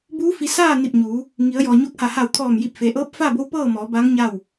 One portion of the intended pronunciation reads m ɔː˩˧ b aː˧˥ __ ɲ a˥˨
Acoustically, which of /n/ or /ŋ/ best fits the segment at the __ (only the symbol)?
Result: ŋ